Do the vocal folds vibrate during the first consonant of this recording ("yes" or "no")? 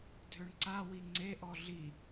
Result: yes